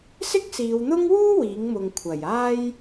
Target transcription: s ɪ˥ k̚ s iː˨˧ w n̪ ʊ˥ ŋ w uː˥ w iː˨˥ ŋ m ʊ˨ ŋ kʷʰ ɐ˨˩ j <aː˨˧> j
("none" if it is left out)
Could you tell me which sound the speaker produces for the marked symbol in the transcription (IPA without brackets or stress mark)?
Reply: aː˥